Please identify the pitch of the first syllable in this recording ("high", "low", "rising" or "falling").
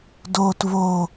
low